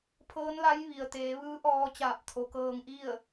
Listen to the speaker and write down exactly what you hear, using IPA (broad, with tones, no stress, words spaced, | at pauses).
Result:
pʰɤː˧˥nla˧˥j ʋi˩ə̯ t̪eː˩˧ ʋɯː˧˥ʔɔː˧ t͡ɕaː˧˩p̚t̪ʰo˩kɤː˧ŋʔi˥˨ə̯